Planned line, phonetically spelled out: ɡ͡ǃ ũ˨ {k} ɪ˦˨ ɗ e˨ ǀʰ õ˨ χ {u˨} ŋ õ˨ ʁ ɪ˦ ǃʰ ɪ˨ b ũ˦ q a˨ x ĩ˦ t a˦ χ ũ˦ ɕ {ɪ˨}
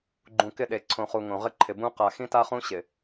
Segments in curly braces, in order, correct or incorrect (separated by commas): correct, correct, correct